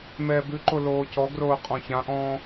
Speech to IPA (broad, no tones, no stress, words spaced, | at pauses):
mɛːbʉǃo loːcɔɡroː qʼɔ̃çãʔɔ̃ː